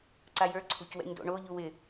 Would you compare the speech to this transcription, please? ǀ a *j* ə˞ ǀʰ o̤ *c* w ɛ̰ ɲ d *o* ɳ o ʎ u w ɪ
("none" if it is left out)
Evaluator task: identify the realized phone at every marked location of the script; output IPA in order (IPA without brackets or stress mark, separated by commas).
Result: j, c, o̰